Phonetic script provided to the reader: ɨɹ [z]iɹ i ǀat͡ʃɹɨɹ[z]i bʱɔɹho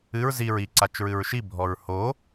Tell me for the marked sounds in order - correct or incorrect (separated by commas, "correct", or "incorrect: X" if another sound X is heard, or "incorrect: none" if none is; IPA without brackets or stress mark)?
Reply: correct, incorrect: ʃ